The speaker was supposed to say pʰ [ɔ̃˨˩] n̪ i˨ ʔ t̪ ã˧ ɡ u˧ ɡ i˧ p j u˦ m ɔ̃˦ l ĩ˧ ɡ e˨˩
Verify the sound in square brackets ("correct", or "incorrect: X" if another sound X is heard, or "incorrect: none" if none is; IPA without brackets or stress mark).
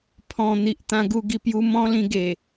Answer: correct